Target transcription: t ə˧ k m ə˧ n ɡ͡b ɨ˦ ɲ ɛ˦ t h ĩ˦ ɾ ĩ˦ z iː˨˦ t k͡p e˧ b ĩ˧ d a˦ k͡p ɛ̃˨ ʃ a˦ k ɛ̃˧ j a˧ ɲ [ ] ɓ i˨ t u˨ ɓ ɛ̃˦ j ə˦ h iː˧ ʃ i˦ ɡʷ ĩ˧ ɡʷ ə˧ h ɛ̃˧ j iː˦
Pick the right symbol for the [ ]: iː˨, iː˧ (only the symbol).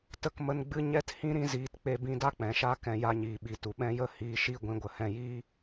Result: iː˨